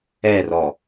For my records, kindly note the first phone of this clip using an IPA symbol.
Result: ɛ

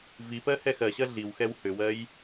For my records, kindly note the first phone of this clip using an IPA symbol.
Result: v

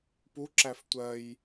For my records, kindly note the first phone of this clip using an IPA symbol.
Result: p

